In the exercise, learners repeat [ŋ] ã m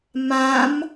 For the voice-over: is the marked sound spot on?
no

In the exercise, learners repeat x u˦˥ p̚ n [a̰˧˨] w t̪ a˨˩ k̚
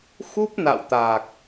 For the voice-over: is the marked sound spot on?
yes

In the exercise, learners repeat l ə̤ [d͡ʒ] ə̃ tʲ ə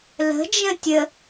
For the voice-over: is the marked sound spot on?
yes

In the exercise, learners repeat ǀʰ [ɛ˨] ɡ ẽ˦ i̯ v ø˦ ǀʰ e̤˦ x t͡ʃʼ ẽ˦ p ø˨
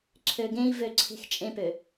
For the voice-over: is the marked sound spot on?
no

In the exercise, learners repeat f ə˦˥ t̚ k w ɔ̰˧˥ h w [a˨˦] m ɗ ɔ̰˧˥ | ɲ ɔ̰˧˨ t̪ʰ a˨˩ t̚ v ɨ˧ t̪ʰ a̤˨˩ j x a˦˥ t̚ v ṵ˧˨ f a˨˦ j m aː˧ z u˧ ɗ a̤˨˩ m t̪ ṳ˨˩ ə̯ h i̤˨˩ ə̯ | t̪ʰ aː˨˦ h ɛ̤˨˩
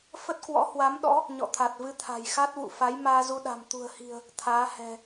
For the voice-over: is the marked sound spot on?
yes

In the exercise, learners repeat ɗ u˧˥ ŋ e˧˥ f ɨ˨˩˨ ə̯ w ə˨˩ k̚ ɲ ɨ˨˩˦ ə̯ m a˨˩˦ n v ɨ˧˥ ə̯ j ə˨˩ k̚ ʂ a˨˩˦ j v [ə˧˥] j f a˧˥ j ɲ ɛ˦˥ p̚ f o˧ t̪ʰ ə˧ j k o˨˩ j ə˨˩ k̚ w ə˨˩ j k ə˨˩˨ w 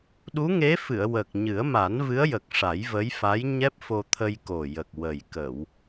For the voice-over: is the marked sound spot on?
yes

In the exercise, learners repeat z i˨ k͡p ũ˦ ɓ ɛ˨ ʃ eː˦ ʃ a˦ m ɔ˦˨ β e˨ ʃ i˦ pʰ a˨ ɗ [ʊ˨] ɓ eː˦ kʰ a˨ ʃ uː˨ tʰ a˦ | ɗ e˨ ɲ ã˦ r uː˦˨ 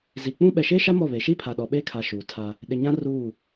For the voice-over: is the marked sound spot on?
no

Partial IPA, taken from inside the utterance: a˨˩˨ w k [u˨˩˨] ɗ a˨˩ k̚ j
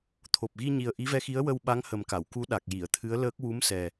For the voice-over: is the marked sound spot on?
no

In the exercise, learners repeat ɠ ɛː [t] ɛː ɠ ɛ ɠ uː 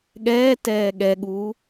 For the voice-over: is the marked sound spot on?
yes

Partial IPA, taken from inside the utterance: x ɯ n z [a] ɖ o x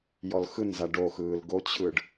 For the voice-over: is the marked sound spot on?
yes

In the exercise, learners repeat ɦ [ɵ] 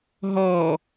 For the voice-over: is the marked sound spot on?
no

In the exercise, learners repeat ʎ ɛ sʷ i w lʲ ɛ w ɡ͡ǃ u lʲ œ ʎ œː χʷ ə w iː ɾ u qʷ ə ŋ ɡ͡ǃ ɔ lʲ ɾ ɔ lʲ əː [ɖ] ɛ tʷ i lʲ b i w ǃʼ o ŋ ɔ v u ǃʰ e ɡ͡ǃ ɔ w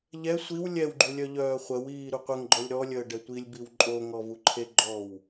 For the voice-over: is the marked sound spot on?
yes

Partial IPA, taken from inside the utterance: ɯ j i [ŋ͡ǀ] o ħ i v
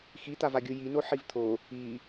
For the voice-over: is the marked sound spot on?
no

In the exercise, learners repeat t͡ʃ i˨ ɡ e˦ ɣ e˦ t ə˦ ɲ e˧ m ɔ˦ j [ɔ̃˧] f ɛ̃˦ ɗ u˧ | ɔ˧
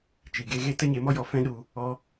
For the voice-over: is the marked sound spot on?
no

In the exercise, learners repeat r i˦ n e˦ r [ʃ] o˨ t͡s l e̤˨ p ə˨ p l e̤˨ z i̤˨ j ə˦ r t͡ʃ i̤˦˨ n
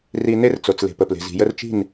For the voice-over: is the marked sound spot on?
no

